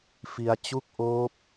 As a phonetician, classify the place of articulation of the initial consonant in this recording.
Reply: labial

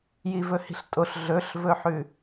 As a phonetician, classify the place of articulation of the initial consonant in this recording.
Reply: palatal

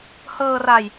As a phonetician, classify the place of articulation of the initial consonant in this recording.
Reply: glottal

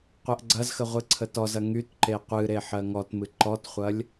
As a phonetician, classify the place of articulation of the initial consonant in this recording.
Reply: uvular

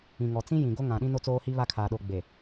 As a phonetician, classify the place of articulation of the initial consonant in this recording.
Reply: velar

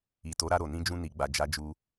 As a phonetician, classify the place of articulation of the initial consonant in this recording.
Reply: alveolar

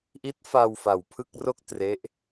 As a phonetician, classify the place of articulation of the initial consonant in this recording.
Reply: glottal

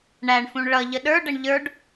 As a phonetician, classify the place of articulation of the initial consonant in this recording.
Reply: retroflex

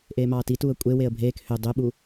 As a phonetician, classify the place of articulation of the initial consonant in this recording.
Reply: glottal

